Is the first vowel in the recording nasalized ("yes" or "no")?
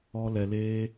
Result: no